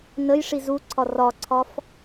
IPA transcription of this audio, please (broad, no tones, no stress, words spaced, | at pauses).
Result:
nəj ʂizuǀʰɒ rɒǀʰɒf